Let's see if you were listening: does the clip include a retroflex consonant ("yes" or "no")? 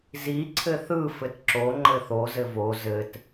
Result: no